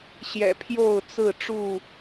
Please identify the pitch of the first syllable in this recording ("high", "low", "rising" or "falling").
low